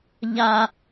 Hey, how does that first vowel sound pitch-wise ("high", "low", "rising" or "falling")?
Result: low